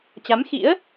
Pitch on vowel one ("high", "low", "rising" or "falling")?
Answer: rising